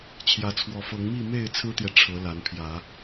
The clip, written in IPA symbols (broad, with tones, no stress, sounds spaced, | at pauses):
t͡ɕʰ j ä˨˦ t͡sʰ w ɔ˨˦ f ɤ˨˦ ŋ m i˥˨ m e˥˨ ɪ̯ t͡sʰ ɹ̩˦ t̪ j ɛ˨ ʈ͡ʂʰ ɤ˨˦ l a˨˦ n pʰ j ä˨˦